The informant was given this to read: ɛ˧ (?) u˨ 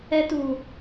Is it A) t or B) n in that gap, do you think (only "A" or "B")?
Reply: A